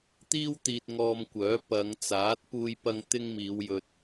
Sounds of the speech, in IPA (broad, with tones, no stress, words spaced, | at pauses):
t̪iː˥wt̪iː˧t̚ ŋɔː˧mkʷœː˨˥ pɐ˨˧ŋt͡saː˨˥t̚ puː˧jpɐ˧ŋ t̪ɪ˥ŋmiː˨˧wjɵ˧t̚